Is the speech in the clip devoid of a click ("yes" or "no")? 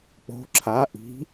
no